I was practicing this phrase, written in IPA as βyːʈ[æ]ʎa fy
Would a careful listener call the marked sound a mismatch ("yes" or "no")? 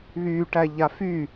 no